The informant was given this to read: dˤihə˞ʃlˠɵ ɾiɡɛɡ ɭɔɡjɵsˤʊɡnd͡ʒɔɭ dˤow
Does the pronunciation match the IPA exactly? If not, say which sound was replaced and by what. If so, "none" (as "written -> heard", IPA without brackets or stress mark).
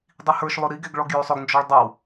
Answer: none